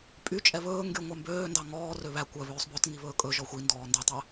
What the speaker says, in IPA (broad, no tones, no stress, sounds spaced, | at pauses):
pʼ y t͡ʃʼ ɛ β ɵː ŋ ɡ y ŋʷ æ m b øː n d ɑ ŋ ɔː r ø β æ kʷ œ β øː sˤ b œ t ŋ i β ɵː kʼ ɵ ʒ ɔ xʷ i n d ɔː n d ø tˤ æ